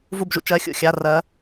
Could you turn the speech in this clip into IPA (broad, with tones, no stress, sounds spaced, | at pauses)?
v u˧˩ b ʒ ṵ˧ t͡ʃ ɜ˩˧˩ xʲ ṵ˧˩ xʲ a˩˧˩ r ɜ˩˧